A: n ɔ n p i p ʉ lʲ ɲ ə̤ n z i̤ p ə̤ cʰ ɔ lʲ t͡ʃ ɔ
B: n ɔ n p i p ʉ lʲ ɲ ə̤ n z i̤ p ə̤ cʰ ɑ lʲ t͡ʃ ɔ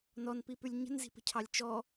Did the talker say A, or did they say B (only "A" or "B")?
B